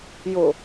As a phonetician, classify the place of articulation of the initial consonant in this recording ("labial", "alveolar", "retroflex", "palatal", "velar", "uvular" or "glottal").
palatal